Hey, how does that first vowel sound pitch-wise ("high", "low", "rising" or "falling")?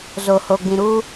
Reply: low